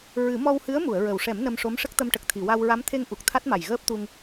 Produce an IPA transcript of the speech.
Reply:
ɹ ɨ˨˩˦ m ɔ˧ w h ɨ˧˥ ə̯ m u˨˩˨ ə̯ ɹ ə˨˩ w ʂ ɛ˨˩˦ m n ə˧ m ʂ o˧˥ m ʂ ə˦˥ k̚ t̪ ə˧ m ʈ ə˨˩ k̚ t̪ʰ i˨˩˨ w a˧ w ɹ a˧˥ m t̪ʰ e˧ ŋ ʔ u˨˩ k̚ t̪ʰ a˦˥ t̚ m a˨˩ j ɣ əː˦˥ p̚ t̪ u˧ ŋ

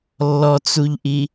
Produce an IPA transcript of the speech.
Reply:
lː ɔ t͡s u ʎ ʔ i

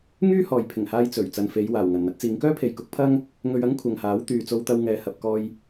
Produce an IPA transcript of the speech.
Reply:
ŋ yː˥ h ɔː˨ j pʰ ɪ˨˩ ŋ h aː˧ j t͡s ɵ˨˩ ɥ t͡s ɐ˨ n f e˨˧ j w aː˨˩ w ŋ ɐ˨˩ n n̪ ɐ˧ t̚ t͡s iː˨˧ ŋ k œː˥ pʰ e˨ j k ʊ˨˥ k̚ pʰ ɐ˥ ŋ | ŋ ɵ˧ ɥ ɐ˥ ŋ kʷʰ ɐ˨ ŋ h aː˨˥ w t̪ yː˨ t͡s o˧ w t̪ ɐ˧ w ŋ ɛː˨ h ɐ˨ p̚ k ɔː˧ j

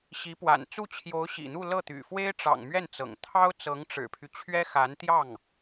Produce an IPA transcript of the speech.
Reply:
ɕ i˧˥ p w a̰˨˩ n t͡s u˥˩ t͡ɕʰ j o˧˥ ʊ̯ ɕ ḭ˨˩ n̪ u˥˧ l ɤ˥˩ t̪ y̰˨˩ f w e˥ ɪ̯ ʈ͡ʂ ɑ̰˨˩ ŋ m ɥ ɛ˥˩ n t͡s ɤ̰˨˩ ŋ t̪ʰ ɑ˥ ʊ̯ t͡s ɤ˧˥ ŋ ʈ͡ʂ ɻ̩˨˩ pʰ y˦ t͡ɕʰ ɥ ɛ˥ x a˧˥ n t̪ j ɑ˥˩ ŋ

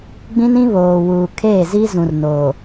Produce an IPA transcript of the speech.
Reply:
ɡ͡b ĩ˦ n ĩ˦ β oː˨ w uː˨ kʰ eː˦˨ z i˦ z ũ˨ r n o˨

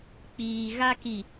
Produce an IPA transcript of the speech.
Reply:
k͡p iː˨ ɣ a˦ k i˨

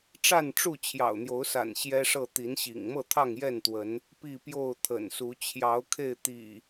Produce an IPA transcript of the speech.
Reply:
ʈ͡ʂ a˥˨ n ʈ͡ʂ u˥˨ t͡ɕʰ j ɑ̰˨˩ ʊ̯ n̪ j o˨˦ ʊ̯ s a̰˨˩ n ɕ j ɛ˦ ʂ ɤ˥˨ t̪ i˨˦ n ɕ ḭ˨˩ ŋ m ɤ˥˨ t̪ʰ ɑ˥˨ ŋ j ɛ˥˨ n t̪ w ə˨˦ n | p i˥˨ p j o˥˨ ʊ̯ t̪ʰ ə̰˨˩ n s u˨˦ t͡ɕʰ j ɑ˨˦ ʊ̯ kʰ e˥˨ ɪ̯ t̪ ḭ˨˩

